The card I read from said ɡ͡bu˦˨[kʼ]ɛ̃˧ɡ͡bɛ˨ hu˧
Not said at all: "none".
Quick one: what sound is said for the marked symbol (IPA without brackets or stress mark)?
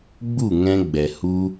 ŋ